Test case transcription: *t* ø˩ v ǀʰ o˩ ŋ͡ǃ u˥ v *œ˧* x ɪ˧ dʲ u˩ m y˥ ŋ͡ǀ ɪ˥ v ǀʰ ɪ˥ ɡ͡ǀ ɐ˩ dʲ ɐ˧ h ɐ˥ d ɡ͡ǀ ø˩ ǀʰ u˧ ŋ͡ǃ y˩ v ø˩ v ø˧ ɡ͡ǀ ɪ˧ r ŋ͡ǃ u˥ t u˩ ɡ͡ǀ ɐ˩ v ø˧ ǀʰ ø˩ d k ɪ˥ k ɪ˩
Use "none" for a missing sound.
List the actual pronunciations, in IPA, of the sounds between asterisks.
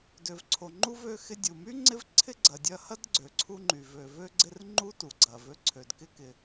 d, ø˧

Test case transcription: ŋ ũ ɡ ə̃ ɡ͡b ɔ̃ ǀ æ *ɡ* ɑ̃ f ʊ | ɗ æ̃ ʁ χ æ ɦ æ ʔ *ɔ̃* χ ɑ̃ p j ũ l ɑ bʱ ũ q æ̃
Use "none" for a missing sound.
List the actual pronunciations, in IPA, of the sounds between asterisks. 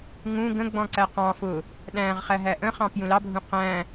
q, ə̃

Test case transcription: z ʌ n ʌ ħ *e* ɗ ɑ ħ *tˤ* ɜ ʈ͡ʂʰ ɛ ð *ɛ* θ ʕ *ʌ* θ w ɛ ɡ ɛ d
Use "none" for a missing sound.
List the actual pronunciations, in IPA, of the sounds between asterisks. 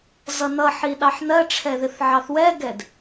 i, n, ɪ, ɑ

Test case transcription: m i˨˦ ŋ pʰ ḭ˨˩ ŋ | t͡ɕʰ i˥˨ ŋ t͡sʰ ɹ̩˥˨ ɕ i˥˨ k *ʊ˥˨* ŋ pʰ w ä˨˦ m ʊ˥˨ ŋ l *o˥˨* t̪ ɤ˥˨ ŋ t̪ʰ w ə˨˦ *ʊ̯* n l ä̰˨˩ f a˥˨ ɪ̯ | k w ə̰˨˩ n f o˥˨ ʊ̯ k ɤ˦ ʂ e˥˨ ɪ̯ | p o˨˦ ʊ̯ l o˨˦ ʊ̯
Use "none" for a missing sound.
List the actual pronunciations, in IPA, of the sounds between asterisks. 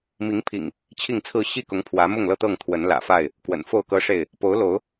ʊ˨˦, ɤ˥˨, none

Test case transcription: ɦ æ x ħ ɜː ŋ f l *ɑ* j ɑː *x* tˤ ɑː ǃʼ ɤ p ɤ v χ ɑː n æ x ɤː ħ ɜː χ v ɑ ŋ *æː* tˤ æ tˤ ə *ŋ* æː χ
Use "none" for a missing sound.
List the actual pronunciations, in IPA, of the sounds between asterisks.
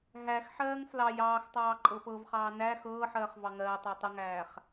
ɑ, x, ɜː, ŋ

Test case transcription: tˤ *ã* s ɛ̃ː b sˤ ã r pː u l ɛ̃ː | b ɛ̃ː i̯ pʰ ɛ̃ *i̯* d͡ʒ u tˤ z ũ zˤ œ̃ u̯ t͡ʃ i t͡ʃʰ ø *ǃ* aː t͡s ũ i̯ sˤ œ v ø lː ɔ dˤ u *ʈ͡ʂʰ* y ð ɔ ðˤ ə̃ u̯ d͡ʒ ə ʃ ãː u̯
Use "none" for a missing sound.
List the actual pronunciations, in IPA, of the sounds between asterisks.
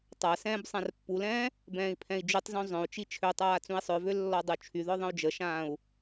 a, i̯, tˤ, t͡ʃʰ

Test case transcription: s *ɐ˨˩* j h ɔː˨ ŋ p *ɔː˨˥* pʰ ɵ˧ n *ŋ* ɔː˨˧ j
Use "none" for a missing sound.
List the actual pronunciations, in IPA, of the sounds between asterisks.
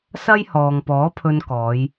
ɐ˥, ɔː˨˥, k

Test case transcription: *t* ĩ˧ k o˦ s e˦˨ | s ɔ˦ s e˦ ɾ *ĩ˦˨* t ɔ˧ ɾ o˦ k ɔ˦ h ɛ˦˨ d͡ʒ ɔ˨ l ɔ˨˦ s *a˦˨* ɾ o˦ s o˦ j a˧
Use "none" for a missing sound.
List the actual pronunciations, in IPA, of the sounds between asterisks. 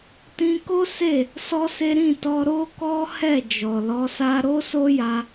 t, ĩ˦˨, a˦

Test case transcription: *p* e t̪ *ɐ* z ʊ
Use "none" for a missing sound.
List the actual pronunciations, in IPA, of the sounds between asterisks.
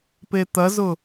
p, ɐ

